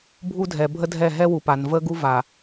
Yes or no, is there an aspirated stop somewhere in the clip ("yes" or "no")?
no